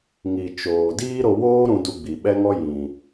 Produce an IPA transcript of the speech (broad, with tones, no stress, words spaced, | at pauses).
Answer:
ŋi˨ t͡ʃoː˨ diː˦ɾo˧woː˦ɾũ˧ du˧ɡ͡bi˨ɓɛ˦ŋɔ˦ jĩ˨